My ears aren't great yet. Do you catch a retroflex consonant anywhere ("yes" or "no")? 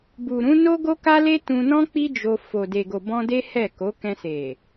no